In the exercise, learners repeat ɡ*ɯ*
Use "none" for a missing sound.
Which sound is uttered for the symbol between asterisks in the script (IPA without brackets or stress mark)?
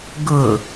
ʊ